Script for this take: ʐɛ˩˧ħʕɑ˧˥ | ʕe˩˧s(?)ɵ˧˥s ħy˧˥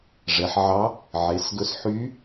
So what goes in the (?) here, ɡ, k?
ɡ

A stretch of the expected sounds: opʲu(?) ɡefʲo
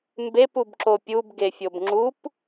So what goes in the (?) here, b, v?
b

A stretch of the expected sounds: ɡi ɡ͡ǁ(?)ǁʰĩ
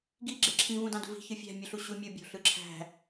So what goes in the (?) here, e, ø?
e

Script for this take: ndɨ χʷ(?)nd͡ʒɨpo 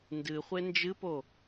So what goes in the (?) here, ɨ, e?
e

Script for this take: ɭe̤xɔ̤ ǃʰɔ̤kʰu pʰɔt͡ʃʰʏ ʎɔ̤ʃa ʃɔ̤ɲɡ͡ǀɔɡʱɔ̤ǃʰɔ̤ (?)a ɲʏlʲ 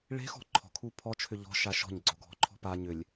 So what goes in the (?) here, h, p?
p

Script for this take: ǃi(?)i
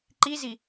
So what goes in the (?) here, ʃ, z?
z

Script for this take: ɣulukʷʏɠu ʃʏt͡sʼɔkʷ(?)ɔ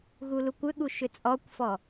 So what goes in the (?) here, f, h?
f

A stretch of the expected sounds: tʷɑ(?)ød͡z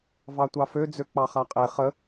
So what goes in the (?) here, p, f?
f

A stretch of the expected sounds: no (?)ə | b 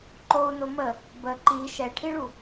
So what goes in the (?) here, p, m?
m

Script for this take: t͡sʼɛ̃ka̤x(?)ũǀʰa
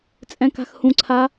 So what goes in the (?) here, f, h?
h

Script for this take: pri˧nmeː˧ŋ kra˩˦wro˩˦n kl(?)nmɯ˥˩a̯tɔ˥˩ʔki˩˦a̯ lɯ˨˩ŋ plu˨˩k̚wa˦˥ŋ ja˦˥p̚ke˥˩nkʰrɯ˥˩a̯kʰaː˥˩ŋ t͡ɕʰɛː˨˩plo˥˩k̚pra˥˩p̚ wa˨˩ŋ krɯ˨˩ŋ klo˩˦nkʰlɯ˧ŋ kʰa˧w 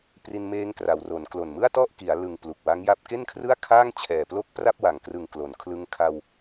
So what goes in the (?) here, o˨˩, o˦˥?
o˨˩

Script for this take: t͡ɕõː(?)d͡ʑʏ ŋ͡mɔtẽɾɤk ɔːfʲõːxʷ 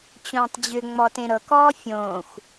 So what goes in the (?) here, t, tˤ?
tˤ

